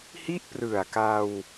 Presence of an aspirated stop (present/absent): absent